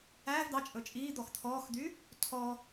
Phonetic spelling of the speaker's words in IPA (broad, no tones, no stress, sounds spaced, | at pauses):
æː v d̪ ɑ t͡ʃʼ ɵ t͡ʃʼ iː d̪ ɔ x t̪ʰ ɔː x d̪ y | tʰ ɔ